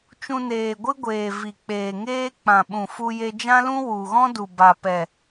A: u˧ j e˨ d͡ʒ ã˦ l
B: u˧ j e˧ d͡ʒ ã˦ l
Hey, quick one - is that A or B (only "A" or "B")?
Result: B